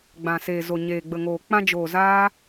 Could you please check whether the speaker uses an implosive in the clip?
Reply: no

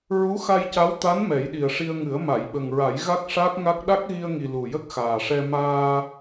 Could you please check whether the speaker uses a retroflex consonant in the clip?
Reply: yes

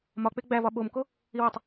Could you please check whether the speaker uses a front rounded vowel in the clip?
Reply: no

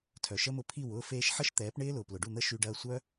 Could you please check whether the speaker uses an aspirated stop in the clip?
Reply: yes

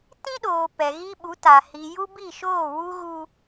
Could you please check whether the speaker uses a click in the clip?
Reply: no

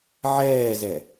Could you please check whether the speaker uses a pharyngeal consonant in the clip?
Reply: yes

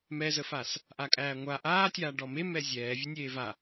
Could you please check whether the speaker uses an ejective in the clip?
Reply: yes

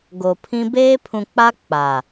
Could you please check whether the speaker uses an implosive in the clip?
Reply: no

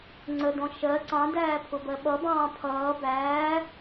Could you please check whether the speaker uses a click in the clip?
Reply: yes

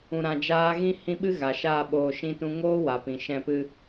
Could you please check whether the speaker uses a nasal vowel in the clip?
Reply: yes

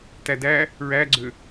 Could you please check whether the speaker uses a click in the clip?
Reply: yes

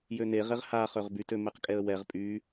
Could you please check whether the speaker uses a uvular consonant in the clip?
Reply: yes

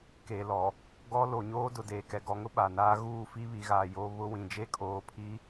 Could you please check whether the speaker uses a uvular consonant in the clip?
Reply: no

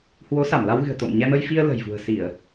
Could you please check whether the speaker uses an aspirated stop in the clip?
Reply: no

